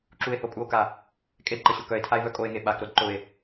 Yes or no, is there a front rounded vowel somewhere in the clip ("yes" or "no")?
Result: yes